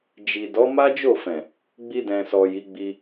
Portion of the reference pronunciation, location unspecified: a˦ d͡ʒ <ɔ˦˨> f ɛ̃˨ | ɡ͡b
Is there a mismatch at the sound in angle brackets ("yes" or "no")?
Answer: yes